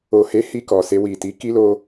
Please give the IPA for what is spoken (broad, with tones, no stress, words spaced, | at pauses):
o˨he˨˦ hi˧kɔ˨se˧ wi˨ti˨˦ ki˦lo˦